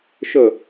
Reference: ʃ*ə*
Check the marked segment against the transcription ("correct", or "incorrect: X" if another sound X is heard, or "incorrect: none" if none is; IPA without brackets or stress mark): correct